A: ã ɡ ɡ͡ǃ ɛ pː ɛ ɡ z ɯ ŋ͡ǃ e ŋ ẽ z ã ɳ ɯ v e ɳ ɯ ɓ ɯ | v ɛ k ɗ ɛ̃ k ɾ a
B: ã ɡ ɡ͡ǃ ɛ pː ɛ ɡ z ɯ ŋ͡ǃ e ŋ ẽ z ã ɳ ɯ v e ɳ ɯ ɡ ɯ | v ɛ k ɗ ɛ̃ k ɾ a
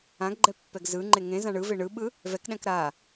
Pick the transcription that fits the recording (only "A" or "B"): A